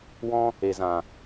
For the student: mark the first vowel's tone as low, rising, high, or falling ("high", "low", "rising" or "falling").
high